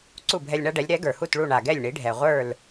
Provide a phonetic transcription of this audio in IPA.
ǀ u˥˩ bʱ ɛ˧ lʲ ɳ a˥ ɖ ɛ˩˥ lʲ ɾ ɛ˩˥ ɡ ə˞˩ h u˥˩ t ɭ u˥˩ ɳ a˩ ɡ ɛ˥˩ lʲ ɳ i˩˥ ɖʱ ɛ˩ ʁʷ ə˞˥˩ l

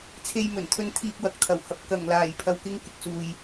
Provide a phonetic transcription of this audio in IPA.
t͡sʰ e˧ j m ɵ˨˩ n t̪ʰ ɵ˧ n t̪ʰ iː˧ k̚ w ɐ˨ k̚ t̪ʰ ɐ˨˩ w h ɐ˨˥ p̚ k ɐ˨˩ ŋ l aː˨˩ j pʰ ɐ˨ w k ɪ˧ ŋ k ɪ˨ k̚ s uː˨ j

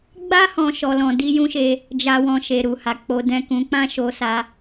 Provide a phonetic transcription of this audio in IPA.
ɡ͡b a˦ h ɔ̃˦ ʃ ɔ˧ l ɔ̃˧ d i˦ j ũ˦ ʃ e˧ | d͡ʒ a˦ w ɔ̃˧ ʃ e˨ ɾ u˨ h a˨ k͡p o˨˦ d ɛ̃˦˨ k ũ˨˦ k͡p ã˦ ʃ o˧ s a˧

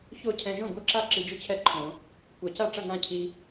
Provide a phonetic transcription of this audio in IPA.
ç o˥˩ cʰ ɛ̃˧ ʒ õ˥˩ ɡʷ ɐ˥˩ ǁ a˥˩ ǁ i˧ d͡ʒ ɨ˥˩ t͡ɕʰ ɛ˥˩ ǃʰ õ˨˩˦ | kʷ ɐ˨˩˦ c a˥˩ ʈ͡ʂ ɐ˥˩ ŋ ã˥˩ cʰ i˧

